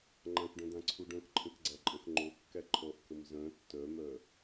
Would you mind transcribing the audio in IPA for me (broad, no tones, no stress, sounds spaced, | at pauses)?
ŋ͡ǃ ã k ɖ œ̃ d ã ǀʰ u ɖ œ̃ k ǃʰ ə̃ k ɡ͡ǀ æ ǃʼ ə̃ x ŋ͡ǃ o kː æ ǃʰ ɔ ʔ k ə m z œ̃ tː œ m œ